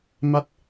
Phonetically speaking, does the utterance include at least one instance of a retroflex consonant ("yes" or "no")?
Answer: no